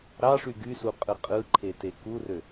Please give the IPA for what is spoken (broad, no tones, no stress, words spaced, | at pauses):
ɾɑʂy ɡysuqʼɯ qʼɯǃʰete kurø